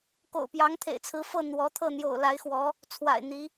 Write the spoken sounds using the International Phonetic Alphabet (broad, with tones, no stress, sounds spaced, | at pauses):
k o̰˨˩ ʊ̯ p j ɑ˧˥ ŋ t̪ʰ ḛ˨˩ ɪ̯ t͡sʰ ɹ̩˧˥ f ɤ˥˩ n̪ w ɔ˧˥ t̪ʰ ɤ˥˩ n̪ j o̰˨˩ ʊ̯ l a˧˥ ɪ̯ x w ɔ˧˥ | t͡sʰ w a̰˨˩ ɪ̯ n̪ i˧˥